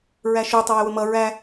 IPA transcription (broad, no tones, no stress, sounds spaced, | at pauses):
ɹ æ ʃ u tˤ ə w ɪ w ʊ m ʌ ɹ æ